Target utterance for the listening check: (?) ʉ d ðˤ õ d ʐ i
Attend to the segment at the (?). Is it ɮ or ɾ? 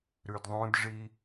ɾ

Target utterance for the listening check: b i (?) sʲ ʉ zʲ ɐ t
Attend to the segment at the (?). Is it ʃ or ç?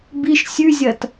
ʃ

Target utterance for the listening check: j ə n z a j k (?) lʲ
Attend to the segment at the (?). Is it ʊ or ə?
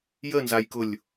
ʊ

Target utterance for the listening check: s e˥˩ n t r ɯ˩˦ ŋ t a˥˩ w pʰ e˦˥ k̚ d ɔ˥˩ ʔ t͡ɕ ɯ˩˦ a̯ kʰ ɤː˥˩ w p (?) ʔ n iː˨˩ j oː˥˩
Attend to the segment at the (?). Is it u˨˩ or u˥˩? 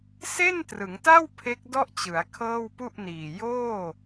u˥˩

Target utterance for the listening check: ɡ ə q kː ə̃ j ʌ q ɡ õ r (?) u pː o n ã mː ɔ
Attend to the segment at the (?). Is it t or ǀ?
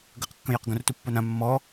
t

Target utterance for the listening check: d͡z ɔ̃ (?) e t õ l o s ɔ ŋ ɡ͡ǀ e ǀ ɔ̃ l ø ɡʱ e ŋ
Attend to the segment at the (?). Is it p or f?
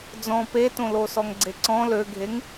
p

